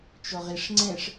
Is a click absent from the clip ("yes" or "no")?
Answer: no